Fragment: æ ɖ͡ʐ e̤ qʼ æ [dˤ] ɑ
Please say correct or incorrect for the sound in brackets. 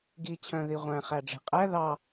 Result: incorrect